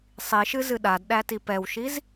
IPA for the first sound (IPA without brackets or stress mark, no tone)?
sˤ